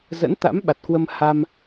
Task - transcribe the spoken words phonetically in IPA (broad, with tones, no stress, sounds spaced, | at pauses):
z ə̰˧˥ n t̪ a̰˧˥ m ɓ a˨˩ t̚ k w ə˧ m h a˧ m